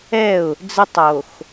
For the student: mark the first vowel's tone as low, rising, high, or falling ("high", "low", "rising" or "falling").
falling